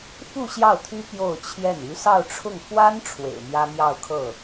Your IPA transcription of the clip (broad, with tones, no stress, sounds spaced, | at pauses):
f u˥˧ ɕ j ɑ˥˩ ʊ̯ t̪ʰ y˥ p j o˥˧ ʊ̯ t͡ɕʰ j ɛ˥˩ n y˧˥ s ɑ˥˧ ʊ̯ ʈ͡ʂʰ ʊ˥˩ ŋ f w a˥ n ʈ͡ʂʰ w ḛ˨˩ ɪ̯ m j ä˥ m j ɑ˥˧ ʊ̯ kʰ ɤ˥˩